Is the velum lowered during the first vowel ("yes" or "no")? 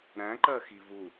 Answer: yes